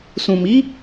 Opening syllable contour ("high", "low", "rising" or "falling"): low